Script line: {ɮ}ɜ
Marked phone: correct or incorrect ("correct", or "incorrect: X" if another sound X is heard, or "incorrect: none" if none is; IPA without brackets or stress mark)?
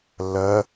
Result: incorrect: lː